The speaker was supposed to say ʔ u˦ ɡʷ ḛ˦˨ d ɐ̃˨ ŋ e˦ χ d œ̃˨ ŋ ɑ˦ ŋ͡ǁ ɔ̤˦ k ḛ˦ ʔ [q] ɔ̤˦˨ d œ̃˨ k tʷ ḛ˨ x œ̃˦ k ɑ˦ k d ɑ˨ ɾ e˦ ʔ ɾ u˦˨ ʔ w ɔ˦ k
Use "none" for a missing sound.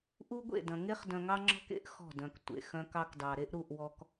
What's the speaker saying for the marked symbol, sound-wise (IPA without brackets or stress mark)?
x